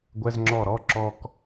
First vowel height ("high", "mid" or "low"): mid